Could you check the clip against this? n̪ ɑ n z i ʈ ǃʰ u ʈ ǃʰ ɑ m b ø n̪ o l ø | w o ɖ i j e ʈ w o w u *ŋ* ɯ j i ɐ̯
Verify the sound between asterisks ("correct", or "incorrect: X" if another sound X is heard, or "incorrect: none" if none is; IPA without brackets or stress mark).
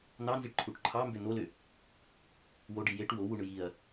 incorrect: ɳ